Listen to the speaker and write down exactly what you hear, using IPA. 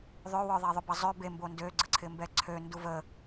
ðˤøwœðˤɛ ðˤʏbɐzˤø bembo ndøɡ͡ǀəǀʰɪmbɛ ǀʰøndu və

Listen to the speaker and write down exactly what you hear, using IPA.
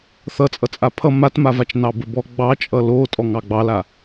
θʌt͡sʼʌt͡sʼa pʰʌ matmavat͡ʃ nɑbəbɔ ɡ͡bɑt͡ʃʼʌ lotʼɔŋ ɑɡ͡bɑla

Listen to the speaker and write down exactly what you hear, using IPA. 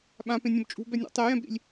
ɓãpẽnʲõb t͡ʃʼṳbɛnʲɔ̰ tˤejɛ̃bɾḭlʲ

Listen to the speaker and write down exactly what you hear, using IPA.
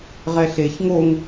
ʁɛɬeç ŋoŋ

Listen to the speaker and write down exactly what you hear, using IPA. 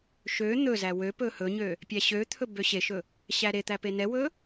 ʃø n̪ɵzæ wøpɵ hɵɲø | pʲæɕøt̪ʰɵ bøɕeʃɵ | ɕæɾet̪æ penɛwɵ

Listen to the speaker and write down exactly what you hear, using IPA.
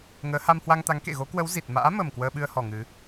ŋəː˨˦ha˧mhwa˧ŋt̪a˨˦ŋ kḛ˧˨ɣo˨˦kwə˨˦w zi˨˩t̚ma̰ː˧˥mə˨˩m kwəː˧ɓɨ˧ə̯hɔ˨˩ ŋɨ˨˦

